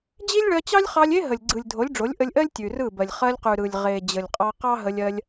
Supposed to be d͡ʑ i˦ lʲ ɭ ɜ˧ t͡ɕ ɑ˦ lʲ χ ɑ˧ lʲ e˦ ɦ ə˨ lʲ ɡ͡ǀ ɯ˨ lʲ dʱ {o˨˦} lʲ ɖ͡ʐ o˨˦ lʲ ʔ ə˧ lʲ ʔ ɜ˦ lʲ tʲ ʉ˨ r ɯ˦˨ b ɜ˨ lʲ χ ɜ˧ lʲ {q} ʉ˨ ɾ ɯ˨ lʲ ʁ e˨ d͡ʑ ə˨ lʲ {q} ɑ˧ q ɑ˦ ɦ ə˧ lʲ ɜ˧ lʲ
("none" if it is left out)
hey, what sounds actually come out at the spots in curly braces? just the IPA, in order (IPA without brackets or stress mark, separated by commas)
o˨˦, q, qʼ